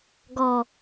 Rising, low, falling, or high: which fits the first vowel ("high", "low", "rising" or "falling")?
low